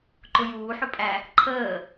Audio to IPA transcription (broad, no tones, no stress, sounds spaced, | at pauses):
ǃ ʊ j uː ħ ʊ pʼ æ | ǃʰ əː